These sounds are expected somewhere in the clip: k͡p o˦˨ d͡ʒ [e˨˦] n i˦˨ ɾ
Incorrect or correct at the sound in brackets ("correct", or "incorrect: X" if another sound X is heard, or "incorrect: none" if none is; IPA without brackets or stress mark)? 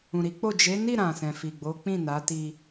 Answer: correct